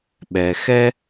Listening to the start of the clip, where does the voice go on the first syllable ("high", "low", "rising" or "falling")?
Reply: low